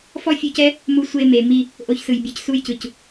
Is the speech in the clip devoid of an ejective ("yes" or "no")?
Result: yes